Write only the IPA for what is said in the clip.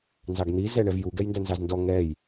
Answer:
n z ɑ ɡ n̪ i z ɛ ɳ ɛ v j u ɡ ɛ j n d æ n z ɑ z n d ɔ ŋ ɛ j

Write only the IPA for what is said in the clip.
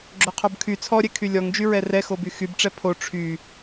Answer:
ɡ͡ǁ o qʰ o b kʰ y t͡sʰ ɔ ɾʲ ɛ kʰ y lʲ ɔ ŋ d͡ʒ y ɹ ɛ r ɛ x o b y x y b ʈ͡ʂ ɛ pʰ o ʈ͡ʂʰ y

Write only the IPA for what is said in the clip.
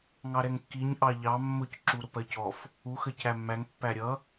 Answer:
ŋ ɑ ɾ ɛ ŋ kː i ɲ ʔ ɑ ʎ ɑ mː ʊ c ǁ u ɾ ʊ p ɜ c ɔ f | u x ə c æ mː æ ŋ pː æ ɾʲ ʌ

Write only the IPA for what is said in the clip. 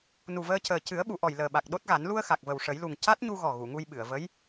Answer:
n u˨˩ v əː˧ c əː˨˩ c ɨ˨˩˦ ə̯ ɓ u˨˩˨ ʔ ɔ˨˩ j l əː˨˩ ɓ a˨˩ k̚ ɗ o˦˥ t̚ ɣ a˨˩˦ n l u˧ ə̯ x a˨˩ k̚ v ə˨˩ w ʂ ə˨˩˦ j l u˨˩ ŋ c a˦˥ t̚ ɲ u˧ ɣ ɔ˨˩ ɣ u˨˩˨ ŋ u˧ j ɓ ɨ˨˩˨ ə̯ v ə˧˥ j

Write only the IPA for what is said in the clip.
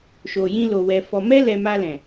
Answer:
ʃ o˨ j ĩ˧ l o˨ w ɛ˨ f ɔ˨ m ɛ˧ l ɛ˨ m a˧ l ɛ̃˨

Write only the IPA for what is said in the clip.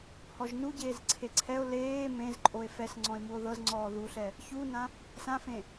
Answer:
h ɔ ʒ n u ɟ eː z ǀʰ e ǀʰ ɛ o̯ l eː m ẽ z ǃʼ o e̯ f ɛ s ŋ͡ǀ ɔ̃ e̯ m u o̯ ð ɤ z ŋ͡ǀ ɔː ð u ɬ ɛ | ç u n ã | s ã f ẽ

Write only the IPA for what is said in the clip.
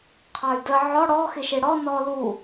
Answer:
qʰ ɑ y̯ d ə ʕ ɔ ɽ ɔ x ɪ ʃ ɪ ɽ ɔ n ɔ l u

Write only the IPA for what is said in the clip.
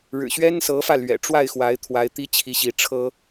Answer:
ɻ ɻ̩˨˩ ɕ ɥ ɛ˥ n s ɤ˧˥ f ä˥˩ l ɥ ɛ̰˨˩ ʈ͡ʂ w a˥˩ ɪ̯ x w a˧˥ ɪ̯ t̪ʰ w a˧˥ ɪ̯ t̪ i˥ t͡ɕʰ i˧˥ ɕ i˧˥ ʈ͡ʂʰ ɤ˥

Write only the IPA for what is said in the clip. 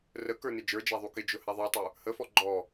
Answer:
r ə k ə˞ n ɪ d͡ʒ ə˞ d͡ʒ æ ðˤ u k ɪ d͡ʒ ʊ h æ ðˤ ə˞ tˤ ə˞ | h ə f ɔ ɡ͡ǃ ɔ

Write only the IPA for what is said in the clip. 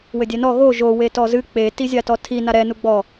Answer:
w ɘ dʲ ɛ n ɔ ɣ o ʒ o w e t ɔ z ɨ k͡p e t i zʲ a t ɔ tʰ i n a ɾ ɛ n u ɡ͡b ɔ

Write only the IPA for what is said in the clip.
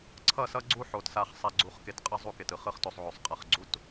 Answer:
ǀʰ ʌ˦˨ s ʌ˦ ɡ͡ǀ u˦ ħ o˨ t s a˧ χ sˤ a˧ ɡ͡ǀ u˨˦ χ k e˧ t qʼ ʌ˦ zˤ u˦ k e˨ t ɯ˨ χ ɯ˦ χ t o˧ sˤ ʕ o˨ sˤ qʼ a˨ χ ɡ͡ǀ u˦ t

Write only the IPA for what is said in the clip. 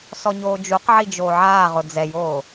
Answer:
s ɔ ɲ oː d͡ʒ u q ʕ i d͡ʒ oː ʕ aː ʁ ʊ d͡z ɛ j oː

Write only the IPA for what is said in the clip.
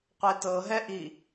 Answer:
qʷ e t ɤ ɦ ɛ ʔ i

